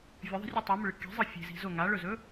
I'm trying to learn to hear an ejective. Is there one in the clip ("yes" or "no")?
no